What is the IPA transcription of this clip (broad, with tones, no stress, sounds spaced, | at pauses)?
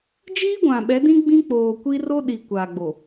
d͡ʒ iː˦ ɡʷ ã˨ ɓ ɛ˨˦ d ĩ˦ ɡ͡b ĩ˦ k͡p oː˨ kʷ i˦ r o˦ ɗ i˨ kʷ aː˨ ɡ͡b o˨